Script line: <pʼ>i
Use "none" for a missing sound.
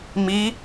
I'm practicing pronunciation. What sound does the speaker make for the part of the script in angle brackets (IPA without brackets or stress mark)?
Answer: m